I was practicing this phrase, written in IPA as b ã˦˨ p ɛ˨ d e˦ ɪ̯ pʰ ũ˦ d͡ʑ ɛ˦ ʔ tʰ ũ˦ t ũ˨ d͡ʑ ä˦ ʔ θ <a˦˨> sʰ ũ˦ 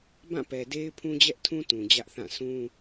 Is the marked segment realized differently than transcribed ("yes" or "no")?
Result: yes